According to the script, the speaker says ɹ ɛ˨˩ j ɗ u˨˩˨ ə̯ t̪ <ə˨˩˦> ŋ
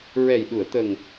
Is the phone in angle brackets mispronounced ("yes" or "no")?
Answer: yes